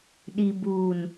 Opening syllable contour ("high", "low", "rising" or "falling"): low